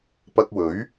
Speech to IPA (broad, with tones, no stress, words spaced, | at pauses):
pɐ˧k̚wɵ˨˥ɥ